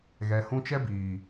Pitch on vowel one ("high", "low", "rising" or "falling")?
low